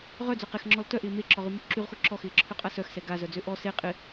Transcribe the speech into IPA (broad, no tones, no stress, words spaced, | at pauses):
ʁœd͡zœ qexŋ͡ǁɔl tœʔɪː meǁɔʁymo ǁyʁxo ǁɔxɪːǁʰøqʼa sœxsɛ ɡazœd͡zø ʔɔ se qʼɪ